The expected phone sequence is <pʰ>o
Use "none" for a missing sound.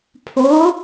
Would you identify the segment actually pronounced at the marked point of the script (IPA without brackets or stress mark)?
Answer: pʰ